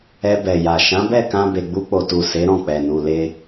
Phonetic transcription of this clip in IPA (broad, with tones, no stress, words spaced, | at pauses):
ɛ˧bɛ˨ja˨ ʃã˨˦bɛ˦˨kã˧ be˨ɡ͡bu˧k͡po˨tu˨ se˨˦ɾɔ̃˦˨k͡pɛ˨ nu˨le˧